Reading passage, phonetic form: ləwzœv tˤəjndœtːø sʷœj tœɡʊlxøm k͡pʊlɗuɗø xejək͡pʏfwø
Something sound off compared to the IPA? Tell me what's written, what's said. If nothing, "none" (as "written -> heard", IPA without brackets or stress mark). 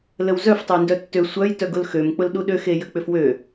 v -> f